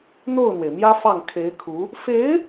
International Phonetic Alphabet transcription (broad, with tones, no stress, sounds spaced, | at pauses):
n̪ o˥˩ ʊ̯ n̪ w e˩ ɪ̯ m j ä˥ f ɑ˥˩ ŋ kʰ e˧˥ ɪ̯ kʰ u˧˥ | f e˧˥ ɪ̯